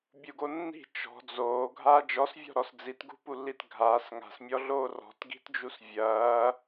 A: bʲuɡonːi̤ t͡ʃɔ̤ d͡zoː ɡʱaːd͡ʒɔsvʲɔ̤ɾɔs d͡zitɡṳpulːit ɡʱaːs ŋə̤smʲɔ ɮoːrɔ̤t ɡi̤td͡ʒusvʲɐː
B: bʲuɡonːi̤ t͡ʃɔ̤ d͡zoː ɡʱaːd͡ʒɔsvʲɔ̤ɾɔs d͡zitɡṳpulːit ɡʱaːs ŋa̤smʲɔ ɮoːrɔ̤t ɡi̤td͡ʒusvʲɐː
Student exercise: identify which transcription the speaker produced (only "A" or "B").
B